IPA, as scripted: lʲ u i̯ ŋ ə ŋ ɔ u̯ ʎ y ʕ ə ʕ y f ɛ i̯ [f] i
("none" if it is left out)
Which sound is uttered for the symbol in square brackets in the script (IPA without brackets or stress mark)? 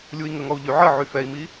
m